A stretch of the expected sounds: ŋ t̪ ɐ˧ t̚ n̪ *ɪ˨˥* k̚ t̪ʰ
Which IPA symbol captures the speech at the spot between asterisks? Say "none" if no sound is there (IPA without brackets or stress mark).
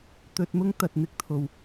ɪ˨˥